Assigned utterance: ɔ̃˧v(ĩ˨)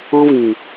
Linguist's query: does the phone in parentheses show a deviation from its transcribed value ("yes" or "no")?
no